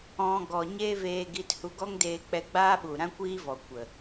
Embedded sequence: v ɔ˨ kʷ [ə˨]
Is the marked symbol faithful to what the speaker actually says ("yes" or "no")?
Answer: yes